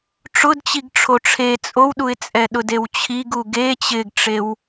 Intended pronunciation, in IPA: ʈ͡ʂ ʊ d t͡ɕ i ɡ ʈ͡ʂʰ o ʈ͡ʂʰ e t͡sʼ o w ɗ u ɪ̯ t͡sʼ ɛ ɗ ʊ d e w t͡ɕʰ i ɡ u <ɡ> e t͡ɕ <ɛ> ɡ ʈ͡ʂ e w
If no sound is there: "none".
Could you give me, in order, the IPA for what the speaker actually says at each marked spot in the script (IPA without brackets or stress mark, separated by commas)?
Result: ɡ, ɪ